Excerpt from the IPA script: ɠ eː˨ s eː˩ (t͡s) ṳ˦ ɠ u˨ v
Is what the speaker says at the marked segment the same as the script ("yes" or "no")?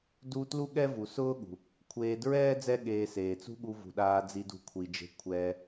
yes